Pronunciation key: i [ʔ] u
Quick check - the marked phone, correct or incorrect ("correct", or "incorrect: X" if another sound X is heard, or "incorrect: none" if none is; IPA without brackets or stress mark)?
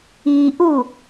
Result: correct